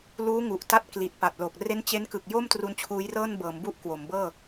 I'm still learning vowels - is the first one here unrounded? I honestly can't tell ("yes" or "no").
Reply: no